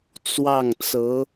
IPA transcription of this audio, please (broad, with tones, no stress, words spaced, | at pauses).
t͡swɑ˥˩ŋt͡sɤ˧˥